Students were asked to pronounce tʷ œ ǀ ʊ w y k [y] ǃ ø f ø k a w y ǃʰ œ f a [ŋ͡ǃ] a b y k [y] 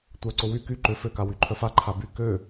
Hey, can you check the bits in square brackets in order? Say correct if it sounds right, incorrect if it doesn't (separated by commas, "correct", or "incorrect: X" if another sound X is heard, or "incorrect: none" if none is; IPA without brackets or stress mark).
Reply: correct, incorrect: ǃʰ, incorrect: ø